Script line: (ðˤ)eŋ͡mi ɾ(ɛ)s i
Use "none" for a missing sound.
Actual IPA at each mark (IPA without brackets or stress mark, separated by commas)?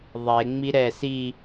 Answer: ðˤ, ɛ